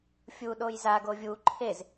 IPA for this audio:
fʲ u ɗ o j z a ɡ o vʲ u ǃʰ e z

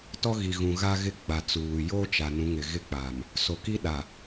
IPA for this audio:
t ɔ˦ ɣ i˨ ɣ ũ˨ ɣ a˦ ɣ ɪ˦˨ ɡ͡b a˨ t͡s uː˨ j o˦ t͡ʃ a˨ n ũ˨˦ ŋ ɪ˨ ɣ ɪ˦˨ k͡p aː˨ m | s o˨ k i˦ ɗ a˨

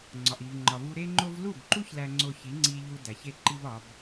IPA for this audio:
ŋ͡ǀ ɒ˨ ʔ i˨ v ŋ͡ǃ ɒ˨ v u˧ ɾ e˦ ŋ͡ǃ o˦ v l u˦˨ b ǃ u˦ ç l æ˦ ŋ͡ǀ o˦ ç i˨˦ ŋ͡ǀ i˧ ʎ u˧ d æ˨ ç e˦ ǃ i˦ v ɒ˨˦ b

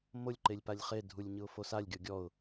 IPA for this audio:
m o lʲ ǃ e lʲ p a lʲ χ e dʱ u lʲ ɲ ɯ ʊ̯ f o s a lʲ ɡʲ ɔ ɡʲ ɔ ʊ̯

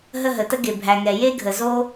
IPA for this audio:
ɦ ə˧ ɦ ə˩ t ə˥ ɡ e˩ bʱ æ˩ ŋ ɛ˩ j e˥ ɡʱ ə˩ z o˥

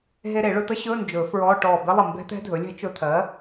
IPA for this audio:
ɦ e˧ ɾ e˨˩˦ ɭ ɵ˧ t̪ ə˦˥ ɕ ɵ˧˥˧ n d͡ʒ ɵ˨˩˦ f ɹ ɔ˧˥˧ ʈ ɔː˧˩ b e˦˥ lˠ ə˧˩ m b ɛ̤˦˥ t̪ ɛ̤˦˥ dʱ ɵ˩˥ lʲ ɛ̤˦˥ t͡ʃ ɵ˧ t̪ʰ ɜ˩˥

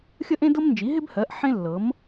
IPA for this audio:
xʲ ə˥ ʔ ẽ˥ d ɤ˥ m n d͡ʒ i˩˥ ɦ ɪ˥ b h ɜ˩˥ ʔ ħ ẽ˥ lː ɤ˩˥ m

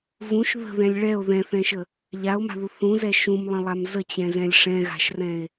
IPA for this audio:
v ũ ʃ ð ə̤ ð ɛ̃ lʲ ɭ ɛ o̯ ð ɛ̃ θ ɛ̃ ʃ ə | ʎ a o̯ m a̤ ð u θ ũ z ɛ ʃ ũ m lˠ ə̃ lˠ a m z ə t͡ɕ ɛ̃ z ɛ̃ lʲ ʂ ɛ̃ ɣ a̤ ʃ r ɛ̃ e̯

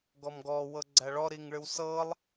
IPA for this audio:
ɡ ɔ m ɡ ɔ w ɤ ɡ͡ǀ æ ɭ ɔ ɾ i ŋ ɭ ɨ w s ɤ lˠ

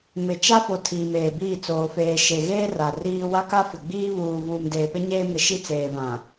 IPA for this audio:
m ɪ˨ t͡ʃ a˦ f o˨ tʰ iː˨ m eː˨ b iː˦˨ t͡s oː˨ f eː˨ ʃ e˨ ɣ eː˦ r a˨ r iː˦ w a˦ k a˦ f ɪ˨ ɡ͡b iː˦ β uː˨ v uː˨ m d eː˨ p ɪ˦ ɲ eː˦ m ɪ˨˦ ʃ i˦ t͡s eː˨ v ã˨

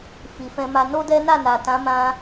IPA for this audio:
f i˨ f ɛ̃˧ m a˧ n o˦ d ɛ˦ n a˦˨ n a˨ t ã˨˦ m ã˧

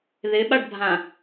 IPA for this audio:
ð ɪː ɓ a ɖ bʱ ã

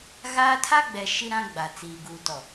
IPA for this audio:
ɣ aː˦ tʰ a˦ ɡ͡b ɛ˨ ʃ i˦ ɾ ã˦ ɡ͡b a˨ t͡s iː˨ ɡ uː˨ t ɔ˨

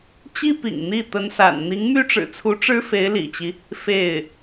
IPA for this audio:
t͡ɕ i˥ p ḭ˨˩ ŋ n̪ i˥˩ t̪ ə˧˥ n s a̰˨˩ n n̪ i˧˥ ŋ m y˥ ʈ͡ʂ ɻ̩˨˩ t͡sʰ u˧˥ ʈ͡ʂ ɻ̩˥ f e˧˥ ɪ̯ l ḭ˨˩ t͡ɕ i˦ | f e˥˩ ɪ̯

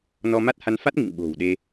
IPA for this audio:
n ɔ˧ m a˦˥ t̚ h a˨˦ n f a˦˥ t̚ ŋ ḭ˧˨ ŋ ɓ o̤˨˩ w ɗ e˧

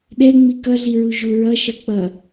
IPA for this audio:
ɗ ɛ ŋ͡m i k ʌ ɮ i ɹ u ʒ u ɹ ʌ ʃ ʌ k͡p ʌ

